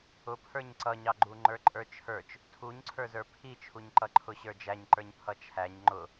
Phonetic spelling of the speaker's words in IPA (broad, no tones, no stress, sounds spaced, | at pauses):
ʊ pʰ ə˞ ɲ ǀ ʌ ɲ ɑ ɡ͡ǃ u ŋ͡ǃ ə˞ ǃʼ ə˞ t͡ʃʰ ə˞ t͡ʃ | tʰ u ɲ ǀʰ ə˞ z ə˞ pʰ i t͡ʃʰ u ɲ ǃ ʌ ǃʰ ʊ ɕ ə˞ d͡ʒ æ ɲ ǃ ə˞ ɲ pʰ ʌ t͡ʃʰ æ ɲ ŋ͡ǃ ʊ